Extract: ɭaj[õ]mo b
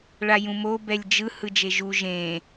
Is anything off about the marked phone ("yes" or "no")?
yes